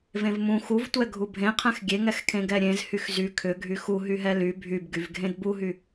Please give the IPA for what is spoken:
vẽvmũ xuvtʷɛ ɡʱubʱẽqʰɛ̃x ɡʲeŋɛxkʰẽ ɡɛɾʲẽz hyxzy kʰʏɡʱy xu ɦyɦɛly bʱybɡyv ɡʱẽdbuɦy

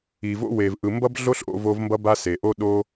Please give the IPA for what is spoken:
i˨vo̰˦we˨v ʔɯ˨mbʌ˦b ɮo˦ɬʔo̰˧vo˧v mbʌ˦ba˦ se˨ʔo˦ ɗo˧

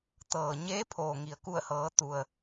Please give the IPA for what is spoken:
t̪ɤː˩ɲeː˧˥ pʰoː˩ŋi˩ə̯ ku˧˩ə̯hɤː˩˧ t̪u˩ə̯

